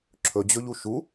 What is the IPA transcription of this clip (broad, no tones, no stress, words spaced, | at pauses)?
ǁʰɵd͡ʑɵʎu ʃu